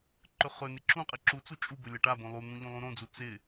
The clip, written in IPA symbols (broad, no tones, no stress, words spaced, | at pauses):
ǃɵχɵnɪ ǁũqʼɪ ǁut͡su t͡ʃʼubɵ lʲaʈabõ lˠun̪ũ ʎũlˠũɾõd͡zu t͡sɪ